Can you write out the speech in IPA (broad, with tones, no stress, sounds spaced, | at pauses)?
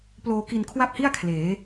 p l oː˧ k i˧ n kʰ w a˥˩ p̚ h i˥˩ a̯ kʰ l eː˩˦